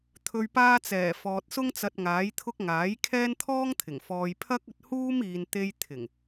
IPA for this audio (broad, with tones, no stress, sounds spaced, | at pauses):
t̪ʰ ɵ˨ ɥ p aː˧ t͡s ɛː˨˩ f ɔː˨ t̚ s ʊ˥ ŋ t͡s ɐ˧ t̚ ŋ aː˨˥ j t̪ʰ ʊ˥ k̚ ŋ aː˨˥ j kʰ ɛː˥ n t̪ʰ ɔː˥ ŋ t̪ʰ ɪ˨˩ ŋ f ɔː˨ j pʰ ɐ˥ k̚ ɵ˧ t̚ h uː˥ m iː˨ n t̪ e˧ j t̪ʰ ɪ˨˩ ŋ